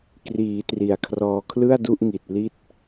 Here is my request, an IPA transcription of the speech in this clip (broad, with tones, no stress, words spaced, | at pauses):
kriː˩˦tri˩˦a̯kʰrɔː˧ kʰlɯ˥˩a̯du˥˩ʔŋi˨˩t̚ li˥˩t̚